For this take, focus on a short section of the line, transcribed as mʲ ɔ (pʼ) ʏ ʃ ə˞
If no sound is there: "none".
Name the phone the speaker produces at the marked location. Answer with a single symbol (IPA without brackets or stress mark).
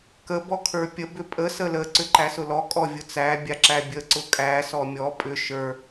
pʼ